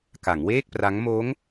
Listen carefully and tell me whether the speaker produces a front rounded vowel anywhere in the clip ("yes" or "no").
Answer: no